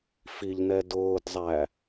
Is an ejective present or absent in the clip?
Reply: absent